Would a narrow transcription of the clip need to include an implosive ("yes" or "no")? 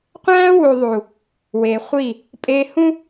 no